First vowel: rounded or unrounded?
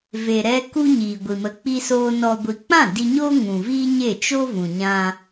unrounded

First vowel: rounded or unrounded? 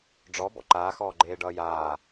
rounded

